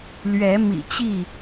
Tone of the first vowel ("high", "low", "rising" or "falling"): rising